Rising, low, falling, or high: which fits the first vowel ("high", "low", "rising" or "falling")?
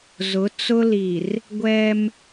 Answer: rising